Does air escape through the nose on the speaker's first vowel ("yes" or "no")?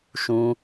yes